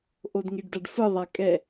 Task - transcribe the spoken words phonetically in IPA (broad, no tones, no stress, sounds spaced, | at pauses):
ʔ o d ŋ i ɖ d a ɖ f ɯ ðˤ a kʼ ɛ